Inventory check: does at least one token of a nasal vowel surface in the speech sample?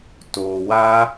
no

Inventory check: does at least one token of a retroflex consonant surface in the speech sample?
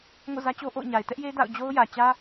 no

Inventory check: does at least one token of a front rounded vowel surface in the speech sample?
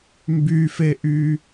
yes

